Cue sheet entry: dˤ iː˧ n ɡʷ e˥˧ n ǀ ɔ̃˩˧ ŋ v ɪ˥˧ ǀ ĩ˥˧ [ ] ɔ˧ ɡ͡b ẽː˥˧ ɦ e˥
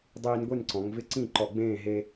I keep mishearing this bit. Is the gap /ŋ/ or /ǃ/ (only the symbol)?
ǃ